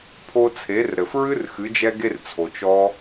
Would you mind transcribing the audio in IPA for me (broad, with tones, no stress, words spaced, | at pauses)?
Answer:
pʰo˧t͡sʰe˩˧rɾɘ˩f ɹɨ˧r xɨ˩˧d͡ʒɛ˧ɡe˧rt͡sʰo˩t͡ʃ ɔ˧